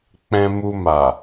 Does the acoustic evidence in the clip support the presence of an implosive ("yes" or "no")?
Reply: no